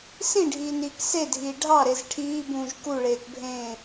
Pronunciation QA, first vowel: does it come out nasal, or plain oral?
nasal